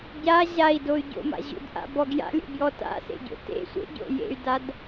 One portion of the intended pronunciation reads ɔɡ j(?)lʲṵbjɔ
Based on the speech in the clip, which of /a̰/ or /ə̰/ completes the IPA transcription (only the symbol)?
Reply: a̰